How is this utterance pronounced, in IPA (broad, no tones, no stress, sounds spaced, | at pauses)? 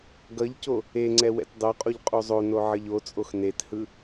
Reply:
ɡ ʌ ʎ c o | e ŋ͡ǀ ɛ w ɛ̰ t dˤ o qʼ o ʎ qʼ u zˤ o n o ʕ ʌ ʎ o t͡sʼ o x n e t h ɯ